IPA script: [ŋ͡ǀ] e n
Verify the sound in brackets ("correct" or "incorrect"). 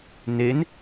incorrect